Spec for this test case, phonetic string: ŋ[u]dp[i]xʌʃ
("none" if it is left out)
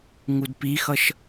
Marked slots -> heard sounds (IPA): u, i

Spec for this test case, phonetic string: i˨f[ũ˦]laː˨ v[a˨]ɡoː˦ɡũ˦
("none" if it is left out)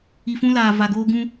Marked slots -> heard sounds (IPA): ũ˦, a˨

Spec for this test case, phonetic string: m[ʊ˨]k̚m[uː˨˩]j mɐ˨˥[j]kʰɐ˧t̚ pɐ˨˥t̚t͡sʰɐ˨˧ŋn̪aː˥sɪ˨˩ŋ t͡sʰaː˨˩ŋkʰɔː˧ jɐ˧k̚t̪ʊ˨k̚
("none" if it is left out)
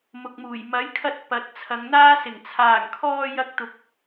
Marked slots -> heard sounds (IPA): ʊ˨, uː˨˩, j

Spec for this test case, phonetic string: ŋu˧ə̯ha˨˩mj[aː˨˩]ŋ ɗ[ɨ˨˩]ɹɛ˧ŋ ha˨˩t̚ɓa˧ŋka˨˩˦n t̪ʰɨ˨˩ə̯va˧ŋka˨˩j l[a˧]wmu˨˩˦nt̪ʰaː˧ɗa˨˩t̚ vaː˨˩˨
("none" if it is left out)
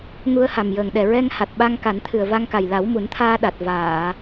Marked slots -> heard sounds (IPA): əː˨˩, ɛ˨˩, a˨˩˦

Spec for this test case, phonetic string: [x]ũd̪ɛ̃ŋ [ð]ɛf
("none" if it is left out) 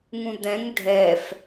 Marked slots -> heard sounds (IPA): ŋ, dʱ

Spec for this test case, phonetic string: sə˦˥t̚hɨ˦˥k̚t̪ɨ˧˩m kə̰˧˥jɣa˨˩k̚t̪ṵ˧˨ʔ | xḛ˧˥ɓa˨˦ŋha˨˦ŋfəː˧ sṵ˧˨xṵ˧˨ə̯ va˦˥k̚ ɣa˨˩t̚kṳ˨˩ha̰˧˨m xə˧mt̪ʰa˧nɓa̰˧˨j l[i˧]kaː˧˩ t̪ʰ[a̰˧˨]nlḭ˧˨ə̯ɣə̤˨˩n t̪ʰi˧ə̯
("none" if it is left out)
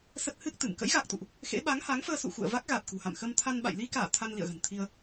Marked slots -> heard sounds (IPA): i˧, a˧

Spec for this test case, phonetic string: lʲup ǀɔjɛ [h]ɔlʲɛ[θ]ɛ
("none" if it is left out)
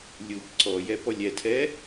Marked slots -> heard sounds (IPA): p, tʰ

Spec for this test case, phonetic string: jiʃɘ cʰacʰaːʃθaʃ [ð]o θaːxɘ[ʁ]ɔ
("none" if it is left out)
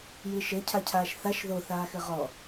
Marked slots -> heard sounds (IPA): ð, ʁ

